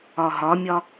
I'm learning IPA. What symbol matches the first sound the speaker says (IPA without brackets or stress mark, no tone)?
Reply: ɒ